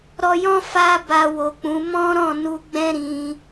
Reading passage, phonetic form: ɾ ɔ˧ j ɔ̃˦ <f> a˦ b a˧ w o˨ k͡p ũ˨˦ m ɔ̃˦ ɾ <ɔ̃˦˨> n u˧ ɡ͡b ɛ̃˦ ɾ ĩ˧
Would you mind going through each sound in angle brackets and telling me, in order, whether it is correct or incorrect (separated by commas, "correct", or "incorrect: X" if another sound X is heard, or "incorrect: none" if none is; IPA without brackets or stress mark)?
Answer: correct, correct